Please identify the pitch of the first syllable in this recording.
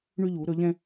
high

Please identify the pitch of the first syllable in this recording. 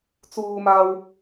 high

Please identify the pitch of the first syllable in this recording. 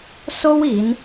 high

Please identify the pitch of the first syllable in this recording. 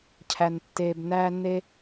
low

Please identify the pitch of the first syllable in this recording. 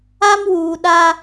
high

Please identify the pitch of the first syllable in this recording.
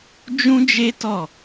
high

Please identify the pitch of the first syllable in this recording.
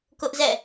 high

